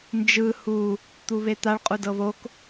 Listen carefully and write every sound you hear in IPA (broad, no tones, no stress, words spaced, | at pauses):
nd͡ʒɯ hu | t̪uβet̪aɭ qʼudɤβok